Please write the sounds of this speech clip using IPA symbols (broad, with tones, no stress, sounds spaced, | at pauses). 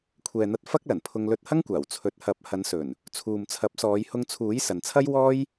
kʷʰ ɛː˨ n̪ ɐ˧ t̚ f ɐ˥ k̚ l ɐ˨˩ n pʰ ʊ˧ ŋ l ɵ˧ t̚ h ɐ˥ ŋ kʷ aː˨˩ w t͡sʰ ɵ˨ t̚ h ɐ˨˥ p̚ h ɐ˨˧ n s ɵ˨˩ n | t͡sʰ uː˨ m t͡sʰ ɐ˨˥ p̚ s ɔː˨˧ j h ʊ˧ ŋ t͡sʰ uː˨˥ j s ɐ˨ n t͡sʰ ɐ˥ j w ɔː˥ j